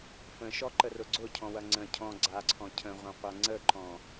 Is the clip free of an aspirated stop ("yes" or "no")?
no